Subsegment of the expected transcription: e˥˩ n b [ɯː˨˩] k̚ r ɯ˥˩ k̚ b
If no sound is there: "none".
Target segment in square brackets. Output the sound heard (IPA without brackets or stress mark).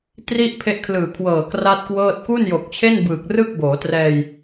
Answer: ɯː˨˩